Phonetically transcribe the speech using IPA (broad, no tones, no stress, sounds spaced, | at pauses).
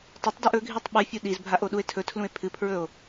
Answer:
tˤ ɐ tˤ d i ʔ ɵ ɡʱ i tˤ ɓ ɨ fʲ u ɗ i z bʱ a ʔ o ɗ u e̯ tʰ ɵ tʰ l ũ e̯ pʰ ɨ pʰ ɹ ɵ o̯